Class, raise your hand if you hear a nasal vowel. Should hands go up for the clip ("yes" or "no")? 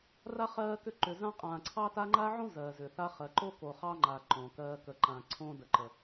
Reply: yes